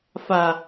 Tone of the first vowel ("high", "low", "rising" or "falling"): low